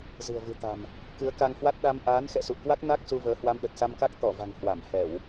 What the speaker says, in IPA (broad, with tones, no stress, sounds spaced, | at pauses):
z ɨ̤˨˩ ə̯ v ɨ̤˨˩ t̪ a̤˨˩ m | k ɨ˨˦ ə̯ k a˧ ŋ h w a˦˥ t̚ ɗ a˧ m ʔ aː˨˦ n x ɛ̰˧˨ s ṵ˧˨ ə̯ k w a˦˥ k̚ n a˦˥ k̚ s u˧ v əː˨˦ h w a˧ m ɗ ə˨˩ t̚ s a˧ m k a˦˥ k̚ t̪ ɔ˧˩ v a̤˨˩ ŋ h w a˧˩ m h ɛ˧˩˨ w